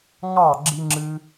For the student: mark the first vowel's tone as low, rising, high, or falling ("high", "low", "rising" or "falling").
falling